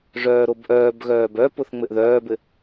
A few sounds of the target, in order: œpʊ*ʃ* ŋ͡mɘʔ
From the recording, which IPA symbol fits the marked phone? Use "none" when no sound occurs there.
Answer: θ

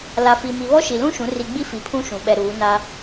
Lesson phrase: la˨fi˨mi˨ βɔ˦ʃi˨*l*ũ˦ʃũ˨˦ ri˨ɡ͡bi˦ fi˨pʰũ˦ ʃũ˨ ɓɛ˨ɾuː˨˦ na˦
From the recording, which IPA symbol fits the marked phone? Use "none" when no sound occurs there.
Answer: l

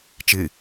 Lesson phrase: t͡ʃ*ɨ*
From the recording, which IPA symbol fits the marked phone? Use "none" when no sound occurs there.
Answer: ɨ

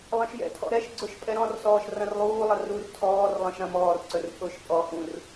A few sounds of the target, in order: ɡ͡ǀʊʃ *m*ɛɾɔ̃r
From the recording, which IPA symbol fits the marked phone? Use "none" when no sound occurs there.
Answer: pʼ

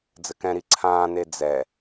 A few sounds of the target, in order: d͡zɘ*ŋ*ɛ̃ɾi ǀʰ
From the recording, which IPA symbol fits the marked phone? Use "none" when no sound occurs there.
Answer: k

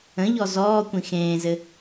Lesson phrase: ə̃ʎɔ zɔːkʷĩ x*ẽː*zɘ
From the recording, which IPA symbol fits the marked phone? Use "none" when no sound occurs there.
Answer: ẽː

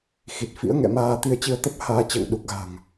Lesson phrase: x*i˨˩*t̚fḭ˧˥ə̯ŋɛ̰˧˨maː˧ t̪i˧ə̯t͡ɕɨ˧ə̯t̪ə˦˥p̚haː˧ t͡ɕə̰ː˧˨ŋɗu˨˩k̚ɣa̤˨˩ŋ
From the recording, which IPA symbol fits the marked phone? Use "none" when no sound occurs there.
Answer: i˨˩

